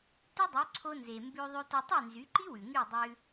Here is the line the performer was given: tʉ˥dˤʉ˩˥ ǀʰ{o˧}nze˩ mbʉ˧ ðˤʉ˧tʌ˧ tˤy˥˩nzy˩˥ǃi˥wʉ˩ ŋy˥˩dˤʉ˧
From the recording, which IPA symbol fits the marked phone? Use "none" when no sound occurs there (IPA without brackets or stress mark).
o˧